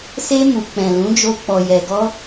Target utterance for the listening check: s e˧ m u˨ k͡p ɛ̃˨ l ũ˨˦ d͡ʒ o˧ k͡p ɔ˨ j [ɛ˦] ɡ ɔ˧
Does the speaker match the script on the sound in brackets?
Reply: no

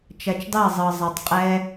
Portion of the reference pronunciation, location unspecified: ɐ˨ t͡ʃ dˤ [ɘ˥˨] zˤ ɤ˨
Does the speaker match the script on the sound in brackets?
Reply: no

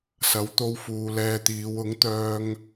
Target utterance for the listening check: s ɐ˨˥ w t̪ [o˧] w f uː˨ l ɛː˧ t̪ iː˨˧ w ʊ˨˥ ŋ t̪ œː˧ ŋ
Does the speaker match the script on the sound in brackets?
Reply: yes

